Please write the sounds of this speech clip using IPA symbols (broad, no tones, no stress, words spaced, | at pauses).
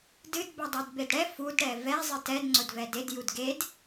dɨd bɛdˤɛdbedɽɛ fud ɽɛvɛ zˤɨtɛd ŋ͡ǀʊdvɛded judɡed